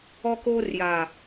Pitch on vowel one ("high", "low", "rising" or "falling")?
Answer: high